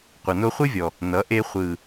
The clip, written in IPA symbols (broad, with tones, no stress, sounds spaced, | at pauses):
qʷ ʌ˨ n o˧ χʷ ɨ˦ vʲ ɔ˨ | n ʌ˨˦ ʔ e˧ χʷ ɯ˨